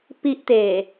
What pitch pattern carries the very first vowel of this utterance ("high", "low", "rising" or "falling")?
high